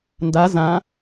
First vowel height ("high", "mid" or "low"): low